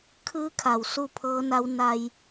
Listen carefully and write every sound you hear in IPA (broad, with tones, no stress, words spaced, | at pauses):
kʰɯː˧˥kʰa˩w su˥˨pʰɤː˧˥na˧˥w na˧j